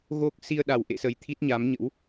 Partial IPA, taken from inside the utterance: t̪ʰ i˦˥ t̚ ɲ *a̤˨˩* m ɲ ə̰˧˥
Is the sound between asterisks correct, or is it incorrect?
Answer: incorrect